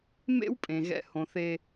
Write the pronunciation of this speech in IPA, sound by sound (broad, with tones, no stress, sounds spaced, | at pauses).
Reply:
m ḛ˥ w pʼ ẽ˩ ɣ ɛ̰˨ h õ˩ θ e˨